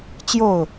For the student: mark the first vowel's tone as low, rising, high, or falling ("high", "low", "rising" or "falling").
falling